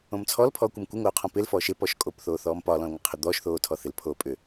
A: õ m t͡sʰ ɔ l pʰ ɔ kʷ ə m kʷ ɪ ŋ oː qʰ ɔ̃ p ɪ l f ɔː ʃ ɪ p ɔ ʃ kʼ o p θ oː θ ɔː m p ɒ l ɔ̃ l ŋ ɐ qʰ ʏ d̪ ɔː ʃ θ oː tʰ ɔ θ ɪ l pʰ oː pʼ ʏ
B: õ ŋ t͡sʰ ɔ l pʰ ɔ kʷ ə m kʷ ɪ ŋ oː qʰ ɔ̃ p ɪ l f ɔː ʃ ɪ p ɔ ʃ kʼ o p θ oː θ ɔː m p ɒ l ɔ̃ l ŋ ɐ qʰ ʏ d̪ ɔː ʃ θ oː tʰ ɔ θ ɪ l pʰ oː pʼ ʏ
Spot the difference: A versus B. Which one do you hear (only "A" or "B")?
A